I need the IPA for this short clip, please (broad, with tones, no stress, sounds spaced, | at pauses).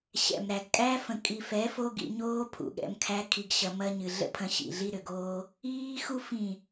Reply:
ɕ ɛ̰˨ m ɾ æ˨ ɡ kʼ æ˦ f ə̃˨ kʼ i˨ f ɛ˨˦ f o˦ ɡ ḭ˧ ɲ oː˦ pʰ ṵ˨ ɠ ɛ̰˧ m kʰ æ˦ kʰ i˧ ɡ ɕ ɐ˧ m ɐ˦ ɲ ɨ˨ ɮ ə̰˦ pʰ ɐ̃˧ ɕ ḭ˨ ɮ i˦ ɾ ʏ˨ ɡ oː˦ | iː˦ x u˦ f ĩ˦˨